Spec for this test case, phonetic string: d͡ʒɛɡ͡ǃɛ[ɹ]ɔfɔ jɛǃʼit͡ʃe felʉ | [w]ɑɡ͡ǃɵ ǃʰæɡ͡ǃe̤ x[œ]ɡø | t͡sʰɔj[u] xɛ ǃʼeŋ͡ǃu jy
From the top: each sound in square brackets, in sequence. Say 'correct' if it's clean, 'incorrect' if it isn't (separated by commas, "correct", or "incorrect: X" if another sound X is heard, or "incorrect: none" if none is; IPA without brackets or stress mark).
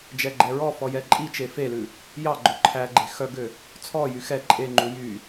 correct, incorrect: j, correct, incorrect: y